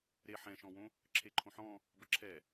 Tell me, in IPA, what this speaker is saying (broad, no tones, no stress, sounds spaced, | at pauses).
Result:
ɾ e ħ ɛ̃ ʃ ɔ̃ w õ | ǁʰ e ǃʰ õ ħ ɔ̃ | b ə ǁʰ ɛ